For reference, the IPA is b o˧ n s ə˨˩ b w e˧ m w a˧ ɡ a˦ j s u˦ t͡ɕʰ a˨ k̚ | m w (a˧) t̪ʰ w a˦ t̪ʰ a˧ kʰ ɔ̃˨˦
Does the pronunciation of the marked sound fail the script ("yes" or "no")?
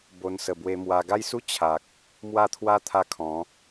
yes